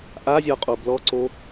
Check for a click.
present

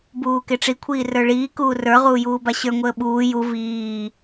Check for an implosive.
present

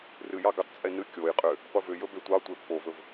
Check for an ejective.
present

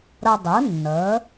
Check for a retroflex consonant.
absent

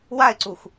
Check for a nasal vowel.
absent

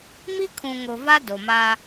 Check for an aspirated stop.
present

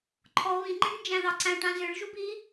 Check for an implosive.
absent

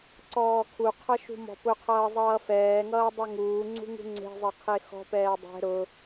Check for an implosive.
absent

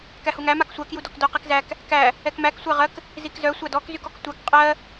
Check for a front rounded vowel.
present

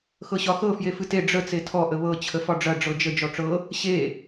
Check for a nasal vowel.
absent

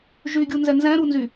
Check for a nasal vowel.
present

